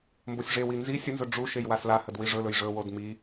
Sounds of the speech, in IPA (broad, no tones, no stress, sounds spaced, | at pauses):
m b o sʲ ʐ e w i n z i sʲ ə n z ɵ ɖ͡ʐ u ʃ e j w a s l a h ə d w i ʐ ɵ l ɵ j ʐ ɵ w o d m i